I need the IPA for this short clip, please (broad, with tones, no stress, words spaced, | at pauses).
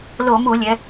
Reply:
lo˧˩˧mu˧˩˧lʲɛ˩˧